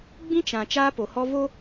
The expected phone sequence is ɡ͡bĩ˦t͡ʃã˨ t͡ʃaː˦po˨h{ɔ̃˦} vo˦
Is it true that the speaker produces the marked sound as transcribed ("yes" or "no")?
no